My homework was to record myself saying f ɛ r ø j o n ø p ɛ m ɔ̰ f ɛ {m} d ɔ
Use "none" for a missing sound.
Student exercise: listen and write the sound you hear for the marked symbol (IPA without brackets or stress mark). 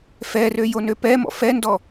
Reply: n